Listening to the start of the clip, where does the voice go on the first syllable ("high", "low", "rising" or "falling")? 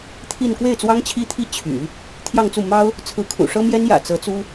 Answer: falling